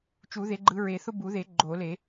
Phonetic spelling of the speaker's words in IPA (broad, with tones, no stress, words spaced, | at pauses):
t͡ʃu˨˩˦ðe˨˦ɡ͡ǃɯ˨˦ ɹe˨˩˦θʊ˦bu˨˩˦ðe˨˩˦ ɡ͡ǃo˨˩˦le˨˩˦